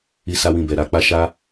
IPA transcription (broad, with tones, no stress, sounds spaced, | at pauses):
i˦ s a˦ w ĩ˦˨ b ɛ˨ ɾ a˨˦ k͡p a˦ ʃ a˦